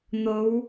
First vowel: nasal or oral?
oral